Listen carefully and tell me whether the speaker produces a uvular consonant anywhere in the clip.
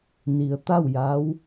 no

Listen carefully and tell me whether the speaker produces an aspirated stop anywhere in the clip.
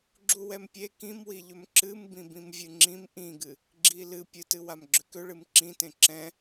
no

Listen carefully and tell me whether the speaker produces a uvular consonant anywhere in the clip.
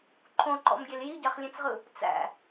yes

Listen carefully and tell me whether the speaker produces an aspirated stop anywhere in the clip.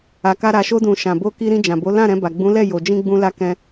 no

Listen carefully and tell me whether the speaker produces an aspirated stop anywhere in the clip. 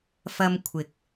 yes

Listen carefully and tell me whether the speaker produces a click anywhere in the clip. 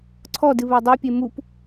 yes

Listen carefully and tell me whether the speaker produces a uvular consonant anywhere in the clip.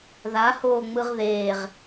yes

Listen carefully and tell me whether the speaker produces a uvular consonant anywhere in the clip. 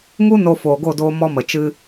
no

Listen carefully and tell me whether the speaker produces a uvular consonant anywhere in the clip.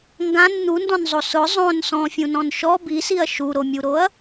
no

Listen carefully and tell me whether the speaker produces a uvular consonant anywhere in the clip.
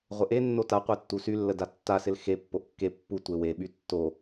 yes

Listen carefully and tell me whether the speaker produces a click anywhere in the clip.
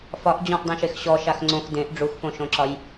yes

